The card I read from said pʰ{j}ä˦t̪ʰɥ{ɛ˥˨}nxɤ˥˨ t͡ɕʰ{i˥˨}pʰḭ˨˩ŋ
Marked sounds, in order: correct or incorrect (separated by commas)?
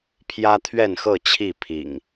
correct, correct, correct